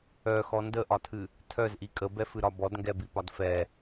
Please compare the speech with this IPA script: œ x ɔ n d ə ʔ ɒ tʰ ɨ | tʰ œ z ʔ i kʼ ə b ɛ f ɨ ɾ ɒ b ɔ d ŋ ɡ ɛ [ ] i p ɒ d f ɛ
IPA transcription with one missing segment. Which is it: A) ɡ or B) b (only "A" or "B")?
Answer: B